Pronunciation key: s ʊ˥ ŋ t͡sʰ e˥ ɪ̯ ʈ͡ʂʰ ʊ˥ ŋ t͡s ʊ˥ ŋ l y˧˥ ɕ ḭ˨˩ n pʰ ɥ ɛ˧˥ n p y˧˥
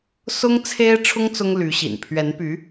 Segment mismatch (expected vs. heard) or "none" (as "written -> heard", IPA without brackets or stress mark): none